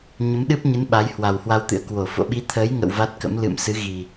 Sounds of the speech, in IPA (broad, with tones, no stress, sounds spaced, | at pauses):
ɲ ə˨˦ m ɗ ɨ˦˥ p̚ ɲ ɨ˨˦ n ɓ a˨˦ j h w a˨˩ w h w a˧ w t̪ ɨ̰˧˥ ə̯ k w o˧˩ f o̰˧˨ ɓ i˨˦ t̪ʰ əː˨˦ j ŋ ə̰˧˨ w v a˦˥ t̚ k ə̰˧˥ m l ɨ̰˧˨ m s ɨ˨˦ ɣ i˨˩